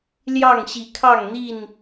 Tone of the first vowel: falling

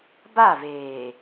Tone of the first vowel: falling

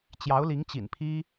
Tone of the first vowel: rising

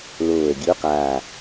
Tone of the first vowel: low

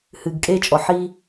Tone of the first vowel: low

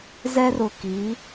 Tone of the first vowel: high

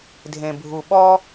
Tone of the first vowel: low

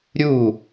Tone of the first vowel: falling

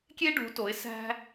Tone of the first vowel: high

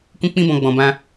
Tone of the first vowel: high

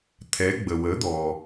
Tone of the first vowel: rising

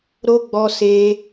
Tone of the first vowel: high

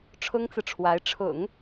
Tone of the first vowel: high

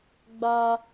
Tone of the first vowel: high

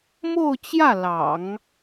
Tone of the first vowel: falling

